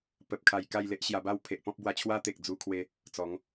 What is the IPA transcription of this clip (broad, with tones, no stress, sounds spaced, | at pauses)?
p ə˨ p̚ kʰ a˨˩ j k a˥˧ j l e˦ ʔ ɕ j a˧ b a˥˧ w pʰ e˨ ʔ p ɔ̃˦ p̚ b w a˧ t͡ɕʰ w a˦ t̪ e˨ k̚ d͡z u˧ kʰ w e˧ | t͡s ɔ˨˦ ŋ